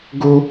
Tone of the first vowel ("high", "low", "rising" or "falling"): high